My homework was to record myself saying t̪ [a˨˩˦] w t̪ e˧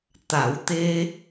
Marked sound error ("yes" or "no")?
no